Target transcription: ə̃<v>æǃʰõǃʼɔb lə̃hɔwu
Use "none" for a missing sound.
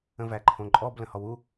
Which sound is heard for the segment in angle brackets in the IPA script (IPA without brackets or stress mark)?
v